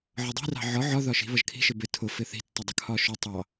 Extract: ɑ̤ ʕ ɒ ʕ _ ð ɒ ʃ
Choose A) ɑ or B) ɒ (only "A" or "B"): B